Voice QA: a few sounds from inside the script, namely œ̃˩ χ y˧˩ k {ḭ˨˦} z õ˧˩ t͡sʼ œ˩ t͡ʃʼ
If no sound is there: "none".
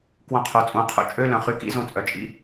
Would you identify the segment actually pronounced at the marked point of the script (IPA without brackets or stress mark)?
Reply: ḭ˧˥˧